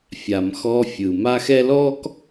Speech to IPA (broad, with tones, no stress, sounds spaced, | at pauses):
fʲ a˨ m x ɔ˦ fʲ ɯ˨ m a˦ x ɛ˦ l ɔː˦ k